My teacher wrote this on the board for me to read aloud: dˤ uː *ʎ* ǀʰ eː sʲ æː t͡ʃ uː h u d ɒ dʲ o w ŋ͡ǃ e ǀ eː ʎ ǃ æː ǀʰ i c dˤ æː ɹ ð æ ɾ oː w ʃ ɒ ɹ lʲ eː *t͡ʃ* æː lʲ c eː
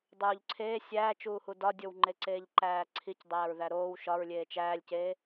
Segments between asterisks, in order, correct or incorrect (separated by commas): correct, correct